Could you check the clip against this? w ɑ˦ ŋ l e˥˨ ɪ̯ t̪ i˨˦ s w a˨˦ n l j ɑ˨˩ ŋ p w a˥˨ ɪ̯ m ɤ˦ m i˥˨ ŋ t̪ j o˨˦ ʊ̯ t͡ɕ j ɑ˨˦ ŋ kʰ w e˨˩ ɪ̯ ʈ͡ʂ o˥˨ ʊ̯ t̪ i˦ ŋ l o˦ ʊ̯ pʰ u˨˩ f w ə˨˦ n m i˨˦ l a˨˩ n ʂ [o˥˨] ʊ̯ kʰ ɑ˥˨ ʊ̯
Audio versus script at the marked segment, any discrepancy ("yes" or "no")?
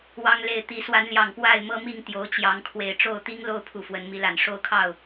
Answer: no